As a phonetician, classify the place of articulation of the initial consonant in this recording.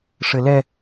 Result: retroflex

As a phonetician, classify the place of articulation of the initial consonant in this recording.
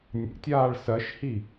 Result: alveolar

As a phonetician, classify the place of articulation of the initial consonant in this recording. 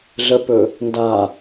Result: alveolar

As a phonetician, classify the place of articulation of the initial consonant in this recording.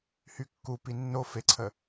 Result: glottal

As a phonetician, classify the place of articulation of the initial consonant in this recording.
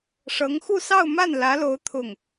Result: retroflex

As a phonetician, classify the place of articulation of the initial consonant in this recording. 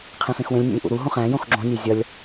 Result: uvular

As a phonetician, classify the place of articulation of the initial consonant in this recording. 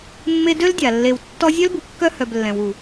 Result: labial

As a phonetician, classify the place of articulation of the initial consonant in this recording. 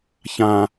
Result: palatal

